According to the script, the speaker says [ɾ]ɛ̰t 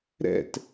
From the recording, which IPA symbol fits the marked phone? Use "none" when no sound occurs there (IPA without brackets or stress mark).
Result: ɾ